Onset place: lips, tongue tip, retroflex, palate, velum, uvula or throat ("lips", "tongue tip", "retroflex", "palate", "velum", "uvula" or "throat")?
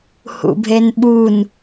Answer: throat